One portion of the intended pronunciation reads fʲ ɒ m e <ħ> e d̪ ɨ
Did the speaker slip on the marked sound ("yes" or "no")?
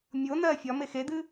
yes